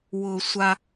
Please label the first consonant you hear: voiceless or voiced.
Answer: voiced